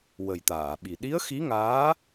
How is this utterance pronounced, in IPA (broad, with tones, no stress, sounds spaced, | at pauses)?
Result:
w ə˨˩ j t̪ aː˨˩˨ ɓ i˨˩ ɗ i˧˥ ə̯ x i˧˥ ŋ aː˧˥